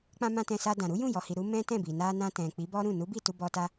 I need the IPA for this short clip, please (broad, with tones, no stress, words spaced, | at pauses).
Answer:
k͡pã˧mã˧ tɛ̃˧sa˧dã˨ ɾu˨˦jũ˦˨jɔ˨hi˨ ɾu˨˦ mɛ̃˦tɛ̃˦˨bi˨ na˧nã˧tɛ̃˨ k͡pi˨˦bɔ˦ɾũ˦˨ nu˨˦bi˦˨ tu˧bɔ˧ta˦